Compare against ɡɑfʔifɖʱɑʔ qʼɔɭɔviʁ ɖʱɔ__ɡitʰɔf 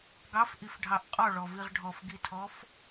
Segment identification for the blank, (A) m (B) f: B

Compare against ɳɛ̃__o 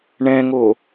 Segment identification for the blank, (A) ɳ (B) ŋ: B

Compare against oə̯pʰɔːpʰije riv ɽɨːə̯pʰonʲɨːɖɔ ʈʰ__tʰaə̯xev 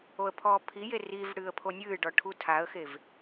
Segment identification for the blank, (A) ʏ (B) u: B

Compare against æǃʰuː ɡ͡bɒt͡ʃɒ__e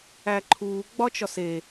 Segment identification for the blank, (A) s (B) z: A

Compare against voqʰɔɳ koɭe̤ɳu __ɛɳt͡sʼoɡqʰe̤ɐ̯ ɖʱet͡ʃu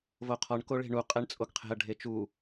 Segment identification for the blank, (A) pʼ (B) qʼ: B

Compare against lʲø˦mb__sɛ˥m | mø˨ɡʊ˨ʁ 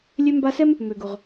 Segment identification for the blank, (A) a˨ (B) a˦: B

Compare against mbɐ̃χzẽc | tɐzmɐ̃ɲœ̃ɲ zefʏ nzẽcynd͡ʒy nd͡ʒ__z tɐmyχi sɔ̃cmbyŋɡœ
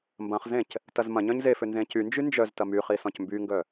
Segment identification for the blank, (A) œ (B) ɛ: A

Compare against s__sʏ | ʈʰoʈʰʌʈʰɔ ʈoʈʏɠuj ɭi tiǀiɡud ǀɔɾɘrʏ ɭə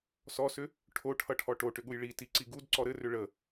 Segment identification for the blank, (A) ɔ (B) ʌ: A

